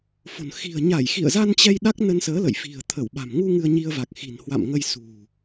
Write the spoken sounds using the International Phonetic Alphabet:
f o̤˨˩ n x i̤˨˩ ə̯ ɲ a˧˩ j x ḭ˧˨ ə̯ z a˧ n t͡ɕ ɛ˧ j ɗ a˦˥ k̚ n ə˧ n s əː˨˦ l ə̰˧˨ j f i̤˨˩ ə̯ t̪ʰ ə˧˩ w ɓ a̤˨˩ m ŋ u˧ ŋ ɨ˧ ə̯ ɲ i˧ ə̯ v a˨˩ k̚ x i̤˨˩ n h w a̰˧˨ m ŋ ə˧ j s ṳ˨˩

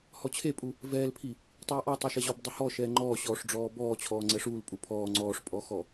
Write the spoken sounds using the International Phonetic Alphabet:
h ɔ t͡ɕʰ e pʼ u | v ɛː l pʰ i | tˤ uː ʔ ɔ tˤ e ʃ ɛ ʑ ɔ b dˤ ʏ h ɔ ʃ ɛː ŋ͡ǃ ɔː ɕ ɔː ʂ ɖ͡ʐ ɔː b ɔː t͡ɕʰ ɔː ŋ͡ǀ ɛ ʂ uː l pʼ u pʰ ɔː ŋ͡ǀ ɔː ʂ pʼ ɔ x ɔ

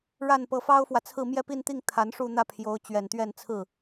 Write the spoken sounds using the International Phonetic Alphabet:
ɻ a˥˩ n p ɤ˧˥ f ɑ˥ ʊ̯ f w ä˨ t͡sʰ ɹ̩˥˧ m j ɛ˥˧ p i˥˧ n t̪ i˥˩ ŋ t̪ʰ a˧˥ n ʂ u˥˧ n̪ ä˥˩ pʰ j o˧˥ ʊ̯ t͡ɕ ɥ ɛ˨˩ n t̪ ɥ ɛ˥˧ n t͡sʰ ɹ̩˥˩

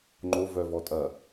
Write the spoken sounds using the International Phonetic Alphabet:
ŋ͡ǃ o v œ v ɔ tʼ ɐ

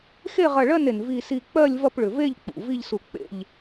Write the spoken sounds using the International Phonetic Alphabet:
x e˥˨ ʁ ɐ˧˩ ɭ ɜ˥˨ n e˩ n v i˧˩ s i˧˩ k͡p ɜ˥˨ lʲ v ɐ˥˨ p ɭ ʏ˩ v e˥˨ ʎ k͡p ṵ˩ v i˥˨ ʎ s u˧˩ k͡p ḛ˥˨ ʎ

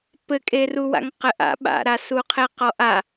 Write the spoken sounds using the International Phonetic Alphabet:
p ɘ kʼ e r u w a̰ ŋ q ɘ ʔ a̰ ɓ a̰ ɾ a s u qʰ e q ɔ ʔ a

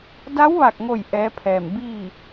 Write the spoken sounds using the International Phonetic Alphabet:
d a˧˥ w ʋ a˧˩ k̚ ŋ o˧˩ j ʔ ɛː˧˥ pʰ ɛː˧˩ m b iː˥˨

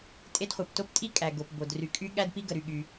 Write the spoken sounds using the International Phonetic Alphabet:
tʼ e˥ d χʷ ɛ˩ p t o˥ p tʼ i˥ kʼ æ˩ ɡ o˩ p b o˩ d r y˩ kʼ y˥ ɠ æ˥ d p i˥ ɡ ə˩ ɾ y˩ ɠ y˩

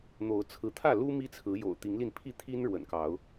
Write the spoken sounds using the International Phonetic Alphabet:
n̪ o˨˦ ʊ̯ t͡sʰ ɹ̩˨˦ t̪ʰ ä˥˨ l u˦ m i˦ t͡sʰ ɹ̩˨˦ j o̰˨˩ ʊ̯ t̪ i˨˦ ŋ l i˧ n pʰ i˥˨ t̪ʰ i˦ n ɻ w ə̰˨˩ n k ɑ˨˦ ʊ̯

